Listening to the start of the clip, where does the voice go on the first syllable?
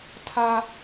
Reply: high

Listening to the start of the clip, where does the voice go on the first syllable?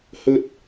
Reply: high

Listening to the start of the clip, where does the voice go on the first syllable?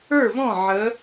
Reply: falling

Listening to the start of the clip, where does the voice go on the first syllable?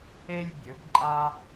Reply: high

